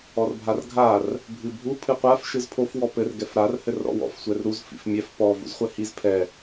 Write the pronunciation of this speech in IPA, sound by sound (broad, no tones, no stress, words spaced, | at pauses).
ɔrbʱarɡʱar | bʱɨbʱu pʰɨqʷaf ʃɨzpʰof wɔpɘr ɡɛfɾar hɘrɾɔ̰wɔ̰f sʷɛrɾuz fḭfmʲɛf pɔ vṵzχʷɛhiz pʰɛ